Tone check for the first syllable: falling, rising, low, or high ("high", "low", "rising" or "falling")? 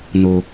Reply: low